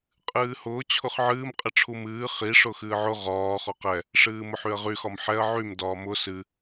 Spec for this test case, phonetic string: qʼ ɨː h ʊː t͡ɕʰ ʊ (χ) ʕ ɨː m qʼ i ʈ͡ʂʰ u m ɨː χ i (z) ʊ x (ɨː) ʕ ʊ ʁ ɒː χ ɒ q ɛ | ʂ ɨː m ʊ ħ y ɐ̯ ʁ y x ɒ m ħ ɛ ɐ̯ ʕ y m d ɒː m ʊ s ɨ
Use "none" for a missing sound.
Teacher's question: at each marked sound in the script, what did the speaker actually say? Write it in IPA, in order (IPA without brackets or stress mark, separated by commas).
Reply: χ, ʂ, ɨː